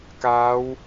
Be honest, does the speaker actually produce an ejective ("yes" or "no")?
no